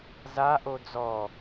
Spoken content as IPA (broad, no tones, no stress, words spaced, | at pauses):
zaʔo d͡zɔ